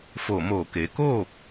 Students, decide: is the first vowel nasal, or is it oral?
oral